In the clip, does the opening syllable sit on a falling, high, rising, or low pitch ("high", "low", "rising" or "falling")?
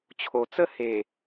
low